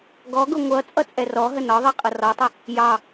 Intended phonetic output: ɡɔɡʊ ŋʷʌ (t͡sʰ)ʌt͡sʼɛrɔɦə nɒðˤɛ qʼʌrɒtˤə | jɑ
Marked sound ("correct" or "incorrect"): incorrect